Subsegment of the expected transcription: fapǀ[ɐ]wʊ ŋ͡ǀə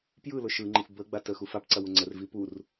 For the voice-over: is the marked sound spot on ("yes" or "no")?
yes